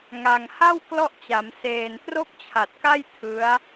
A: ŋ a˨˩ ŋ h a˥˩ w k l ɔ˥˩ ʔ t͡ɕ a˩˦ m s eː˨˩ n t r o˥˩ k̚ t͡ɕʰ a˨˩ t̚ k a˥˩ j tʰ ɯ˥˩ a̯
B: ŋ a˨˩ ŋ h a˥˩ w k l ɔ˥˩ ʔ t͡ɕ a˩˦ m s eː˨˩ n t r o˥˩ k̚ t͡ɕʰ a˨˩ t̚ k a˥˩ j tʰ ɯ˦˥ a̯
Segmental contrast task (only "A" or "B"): B